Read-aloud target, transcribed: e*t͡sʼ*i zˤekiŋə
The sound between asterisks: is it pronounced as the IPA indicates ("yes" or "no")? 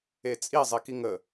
yes